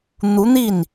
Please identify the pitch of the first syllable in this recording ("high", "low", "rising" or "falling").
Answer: rising